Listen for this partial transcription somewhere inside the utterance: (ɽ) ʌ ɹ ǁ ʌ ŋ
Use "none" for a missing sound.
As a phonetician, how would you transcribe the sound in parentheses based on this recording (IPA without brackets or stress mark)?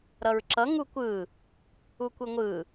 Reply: ɾ